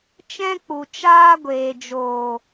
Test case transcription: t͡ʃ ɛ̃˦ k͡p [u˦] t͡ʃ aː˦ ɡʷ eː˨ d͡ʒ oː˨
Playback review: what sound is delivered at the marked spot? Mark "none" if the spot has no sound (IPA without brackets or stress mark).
u˨